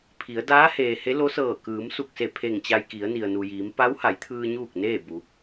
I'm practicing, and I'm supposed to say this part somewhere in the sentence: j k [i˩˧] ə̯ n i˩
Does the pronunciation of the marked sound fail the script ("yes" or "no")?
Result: no